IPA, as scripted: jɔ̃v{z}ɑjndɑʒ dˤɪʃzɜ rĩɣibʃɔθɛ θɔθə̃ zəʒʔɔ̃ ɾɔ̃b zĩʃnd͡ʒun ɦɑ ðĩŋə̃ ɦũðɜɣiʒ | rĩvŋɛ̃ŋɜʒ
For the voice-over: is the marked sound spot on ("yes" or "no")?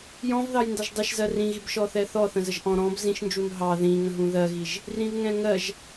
no